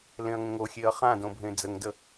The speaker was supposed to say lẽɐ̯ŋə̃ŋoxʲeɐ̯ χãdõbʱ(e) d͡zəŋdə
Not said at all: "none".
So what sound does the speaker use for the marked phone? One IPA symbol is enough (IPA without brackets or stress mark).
ẽ